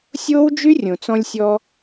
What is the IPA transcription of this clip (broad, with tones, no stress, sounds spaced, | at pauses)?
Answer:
sʲ oː˦ w d͡ʒ y˦ rʲ õ˨ t͡s ɔ̃˧ lʲ sʲ ɔ˧